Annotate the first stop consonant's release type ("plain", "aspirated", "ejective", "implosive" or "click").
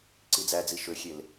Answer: click